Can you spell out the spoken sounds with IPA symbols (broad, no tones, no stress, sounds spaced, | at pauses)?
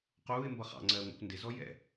q uː ɪ̯ m b ʌ χ ɑ̰ ŋ͡ǀ ɜː ŋʷ ɑ̰ kʷ n d ɪ z ɔ j ɛ̰